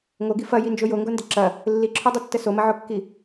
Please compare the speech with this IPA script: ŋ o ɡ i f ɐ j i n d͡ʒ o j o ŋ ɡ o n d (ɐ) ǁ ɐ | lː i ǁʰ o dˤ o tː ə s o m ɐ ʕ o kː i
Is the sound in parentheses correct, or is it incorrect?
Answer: incorrect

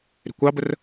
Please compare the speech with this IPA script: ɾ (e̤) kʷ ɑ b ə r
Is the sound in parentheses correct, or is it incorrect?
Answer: correct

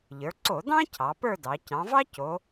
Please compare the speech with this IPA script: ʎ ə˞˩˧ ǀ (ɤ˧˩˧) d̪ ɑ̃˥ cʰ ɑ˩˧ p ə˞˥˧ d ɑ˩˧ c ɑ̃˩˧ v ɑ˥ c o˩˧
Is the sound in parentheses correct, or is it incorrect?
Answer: incorrect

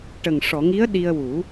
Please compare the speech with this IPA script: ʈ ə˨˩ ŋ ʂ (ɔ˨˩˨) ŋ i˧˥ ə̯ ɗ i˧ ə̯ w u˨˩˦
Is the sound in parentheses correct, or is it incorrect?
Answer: correct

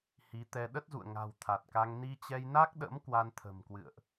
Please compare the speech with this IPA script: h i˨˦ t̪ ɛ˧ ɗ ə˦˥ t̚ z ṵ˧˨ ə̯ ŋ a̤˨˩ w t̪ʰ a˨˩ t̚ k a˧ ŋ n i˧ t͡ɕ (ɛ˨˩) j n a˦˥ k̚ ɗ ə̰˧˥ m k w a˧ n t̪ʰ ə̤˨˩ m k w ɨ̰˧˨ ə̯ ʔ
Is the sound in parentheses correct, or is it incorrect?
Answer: incorrect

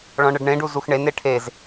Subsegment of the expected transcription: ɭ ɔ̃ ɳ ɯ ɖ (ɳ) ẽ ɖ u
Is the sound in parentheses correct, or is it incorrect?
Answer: correct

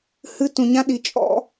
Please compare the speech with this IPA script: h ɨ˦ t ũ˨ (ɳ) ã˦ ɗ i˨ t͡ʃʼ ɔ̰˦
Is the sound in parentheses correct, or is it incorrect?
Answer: incorrect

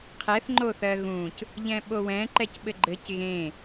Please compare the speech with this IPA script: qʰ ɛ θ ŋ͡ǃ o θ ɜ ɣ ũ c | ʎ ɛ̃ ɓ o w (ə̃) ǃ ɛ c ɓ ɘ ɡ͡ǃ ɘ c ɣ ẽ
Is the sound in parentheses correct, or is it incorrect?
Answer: incorrect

